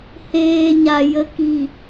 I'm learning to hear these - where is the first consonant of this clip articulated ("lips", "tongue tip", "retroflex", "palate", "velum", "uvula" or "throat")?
throat